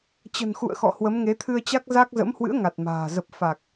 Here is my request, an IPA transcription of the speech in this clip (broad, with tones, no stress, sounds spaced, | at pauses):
t͡ɕ ə̤˨˩ n x ṵ˧˨ ə̯ x ɔ̰˧˨ h w ə˨˦ m ŋ e˨˦ t̪ʰ ɨ˧ ə̯ t͡ɕ a˦˥ k̚ z a˦˥ k̚ z ə̰˧˥ m h w ɨ̰˧˥ ə̯ ŋ a˨˩ t̚ m a̤ː˨˩ z ə˨˩ p̚ f a˨˩ k̚